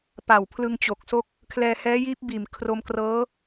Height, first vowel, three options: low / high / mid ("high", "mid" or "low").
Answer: low